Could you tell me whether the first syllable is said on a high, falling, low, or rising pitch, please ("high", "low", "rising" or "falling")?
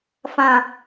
low